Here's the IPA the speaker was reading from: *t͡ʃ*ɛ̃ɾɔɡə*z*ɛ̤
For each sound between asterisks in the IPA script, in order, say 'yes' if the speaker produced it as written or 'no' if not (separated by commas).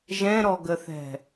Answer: no, no